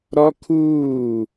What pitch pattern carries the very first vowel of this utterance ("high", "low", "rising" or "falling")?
high